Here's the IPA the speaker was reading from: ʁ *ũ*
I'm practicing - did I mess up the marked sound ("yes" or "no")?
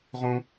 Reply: no